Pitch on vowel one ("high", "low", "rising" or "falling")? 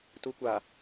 low